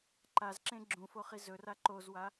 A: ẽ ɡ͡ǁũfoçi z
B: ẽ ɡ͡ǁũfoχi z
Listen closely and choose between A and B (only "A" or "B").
B